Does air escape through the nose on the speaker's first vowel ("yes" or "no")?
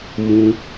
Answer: yes